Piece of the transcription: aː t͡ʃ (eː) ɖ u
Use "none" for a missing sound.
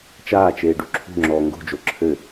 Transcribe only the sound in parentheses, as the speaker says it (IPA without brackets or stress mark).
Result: eː